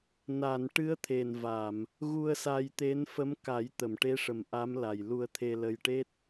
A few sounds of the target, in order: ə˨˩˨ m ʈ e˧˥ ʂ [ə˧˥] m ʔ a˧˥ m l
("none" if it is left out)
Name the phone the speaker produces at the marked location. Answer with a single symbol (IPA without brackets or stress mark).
ə˨˩